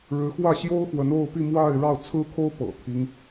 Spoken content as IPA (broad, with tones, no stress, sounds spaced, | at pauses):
ɻ ɻ̩˧˥ x w ä˥˩ ɕ j o˥ ʊ̯ x w ə˧˥ n o˥˧ ʊ̯ p i˥˧ m w a˥˧ ɪ̯ ɻ ɑ˥˩ ʊ̯ t͡sʰ ɹ̩˥ kʰ o˥ ʊ̯ p ɤ̰˨˩ t̪ʰ i˦ ŋ